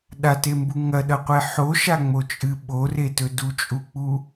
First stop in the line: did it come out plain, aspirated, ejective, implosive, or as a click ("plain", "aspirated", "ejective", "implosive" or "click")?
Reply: implosive